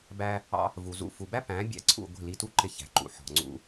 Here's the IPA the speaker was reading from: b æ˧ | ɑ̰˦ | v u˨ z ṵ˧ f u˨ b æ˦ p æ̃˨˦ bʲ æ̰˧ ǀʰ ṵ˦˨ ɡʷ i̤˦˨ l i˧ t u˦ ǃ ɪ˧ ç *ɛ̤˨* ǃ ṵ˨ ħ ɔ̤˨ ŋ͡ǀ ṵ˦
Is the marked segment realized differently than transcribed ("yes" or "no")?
yes